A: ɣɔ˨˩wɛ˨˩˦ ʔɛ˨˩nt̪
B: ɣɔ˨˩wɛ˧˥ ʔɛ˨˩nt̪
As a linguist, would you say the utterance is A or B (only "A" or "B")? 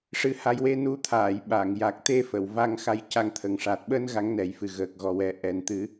A